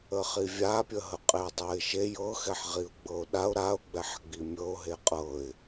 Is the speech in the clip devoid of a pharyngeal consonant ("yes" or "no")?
no